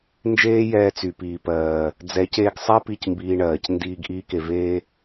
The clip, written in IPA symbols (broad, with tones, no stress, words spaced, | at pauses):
nd͡ʒeː˦jɛː˧ t͡sy˨piː˨pɜː˨ | d͡zɛ˨˦c eː˧ɡsˤɛ˦ pi˦˨cmbiː˧ɳɜː˨c ndiː˧ɡ ʔiː˧ke˨veː˧